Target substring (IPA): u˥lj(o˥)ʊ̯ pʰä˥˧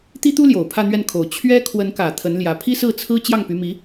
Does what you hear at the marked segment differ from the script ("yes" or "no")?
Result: yes